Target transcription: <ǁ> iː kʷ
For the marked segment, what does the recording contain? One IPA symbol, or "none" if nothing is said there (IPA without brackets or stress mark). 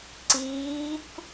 ǀ